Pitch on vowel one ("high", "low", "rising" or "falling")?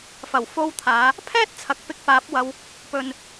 low